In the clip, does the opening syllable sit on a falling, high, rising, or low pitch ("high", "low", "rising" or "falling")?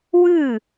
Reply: falling